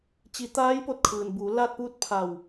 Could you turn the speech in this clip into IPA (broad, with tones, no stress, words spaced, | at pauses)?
t͡ɕi˩˧t̪aː˧˥j po˧t̚kʰɯː˩nbuː˩˧ laː˥˨t̚puː˥˨t̚pʰa˧˩w